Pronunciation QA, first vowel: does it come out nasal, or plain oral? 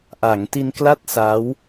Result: oral